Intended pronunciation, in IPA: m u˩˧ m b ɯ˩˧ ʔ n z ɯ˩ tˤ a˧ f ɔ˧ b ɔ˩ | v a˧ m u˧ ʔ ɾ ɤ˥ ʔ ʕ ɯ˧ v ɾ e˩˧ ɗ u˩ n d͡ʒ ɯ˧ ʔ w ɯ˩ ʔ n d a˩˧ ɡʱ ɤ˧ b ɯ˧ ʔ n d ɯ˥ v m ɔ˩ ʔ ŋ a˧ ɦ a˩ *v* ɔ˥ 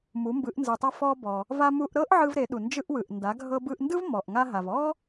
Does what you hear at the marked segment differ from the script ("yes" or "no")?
no